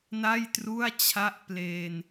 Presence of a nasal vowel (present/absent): absent